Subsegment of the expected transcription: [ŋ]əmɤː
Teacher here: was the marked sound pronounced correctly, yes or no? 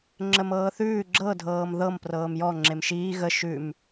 no